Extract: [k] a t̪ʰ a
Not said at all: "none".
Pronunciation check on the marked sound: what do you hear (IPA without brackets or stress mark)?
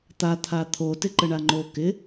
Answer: t̪